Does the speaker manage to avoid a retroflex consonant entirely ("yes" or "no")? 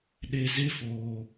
yes